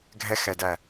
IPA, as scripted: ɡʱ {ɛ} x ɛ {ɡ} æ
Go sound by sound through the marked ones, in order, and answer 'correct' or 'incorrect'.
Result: correct, incorrect

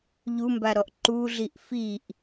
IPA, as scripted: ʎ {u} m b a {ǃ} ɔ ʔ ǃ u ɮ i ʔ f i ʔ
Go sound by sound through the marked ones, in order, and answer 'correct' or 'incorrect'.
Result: correct, incorrect

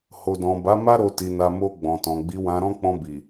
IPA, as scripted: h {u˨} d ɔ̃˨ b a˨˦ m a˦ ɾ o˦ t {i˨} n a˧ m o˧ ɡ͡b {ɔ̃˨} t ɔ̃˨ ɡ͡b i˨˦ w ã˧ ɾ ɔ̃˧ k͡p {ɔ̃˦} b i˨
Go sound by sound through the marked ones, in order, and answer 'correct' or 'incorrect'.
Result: incorrect, incorrect, correct, incorrect

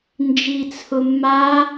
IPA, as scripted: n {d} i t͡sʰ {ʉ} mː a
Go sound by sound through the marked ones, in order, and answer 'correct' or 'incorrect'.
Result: incorrect, incorrect

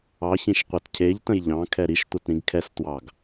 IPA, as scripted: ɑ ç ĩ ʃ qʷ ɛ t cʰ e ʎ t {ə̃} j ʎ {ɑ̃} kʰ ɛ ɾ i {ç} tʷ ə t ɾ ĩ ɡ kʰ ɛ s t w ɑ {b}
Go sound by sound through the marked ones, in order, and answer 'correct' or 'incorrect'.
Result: correct, correct, incorrect, incorrect

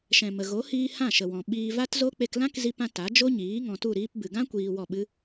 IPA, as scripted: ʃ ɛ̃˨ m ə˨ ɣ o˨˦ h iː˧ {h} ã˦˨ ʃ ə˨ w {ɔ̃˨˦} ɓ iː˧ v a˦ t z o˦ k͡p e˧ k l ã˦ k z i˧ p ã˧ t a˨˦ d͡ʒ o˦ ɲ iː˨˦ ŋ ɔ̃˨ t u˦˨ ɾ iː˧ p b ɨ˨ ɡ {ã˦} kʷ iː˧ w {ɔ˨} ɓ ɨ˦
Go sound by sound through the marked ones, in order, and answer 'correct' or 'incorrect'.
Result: correct, incorrect, correct, incorrect

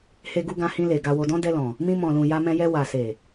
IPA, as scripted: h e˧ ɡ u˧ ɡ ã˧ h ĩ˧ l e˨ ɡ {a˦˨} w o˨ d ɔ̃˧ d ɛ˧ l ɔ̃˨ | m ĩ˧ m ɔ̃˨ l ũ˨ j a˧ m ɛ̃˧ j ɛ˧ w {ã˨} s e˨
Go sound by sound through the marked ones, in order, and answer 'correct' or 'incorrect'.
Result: incorrect, incorrect

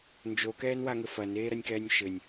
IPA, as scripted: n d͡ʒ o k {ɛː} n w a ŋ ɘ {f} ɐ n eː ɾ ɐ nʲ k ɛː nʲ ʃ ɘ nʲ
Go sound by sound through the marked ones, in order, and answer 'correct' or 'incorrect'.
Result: correct, correct

